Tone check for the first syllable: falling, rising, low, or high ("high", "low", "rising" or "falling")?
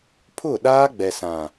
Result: falling